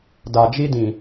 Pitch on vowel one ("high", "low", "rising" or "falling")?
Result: low